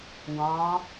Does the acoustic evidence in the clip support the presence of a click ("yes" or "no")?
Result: no